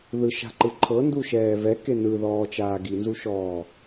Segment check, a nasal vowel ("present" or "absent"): absent